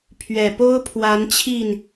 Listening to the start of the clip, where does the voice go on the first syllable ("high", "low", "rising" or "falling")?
low